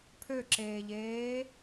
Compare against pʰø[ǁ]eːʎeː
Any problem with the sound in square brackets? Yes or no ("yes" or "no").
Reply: no